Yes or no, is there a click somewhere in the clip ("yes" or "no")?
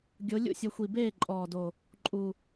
yes